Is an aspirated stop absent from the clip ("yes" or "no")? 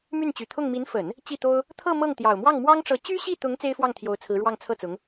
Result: no